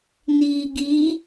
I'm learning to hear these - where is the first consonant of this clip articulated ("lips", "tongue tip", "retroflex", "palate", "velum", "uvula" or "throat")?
tongue tip